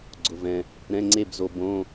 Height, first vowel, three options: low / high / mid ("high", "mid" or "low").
high